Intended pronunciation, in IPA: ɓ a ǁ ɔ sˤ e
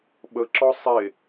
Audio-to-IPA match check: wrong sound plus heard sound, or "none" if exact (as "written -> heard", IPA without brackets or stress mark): a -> ə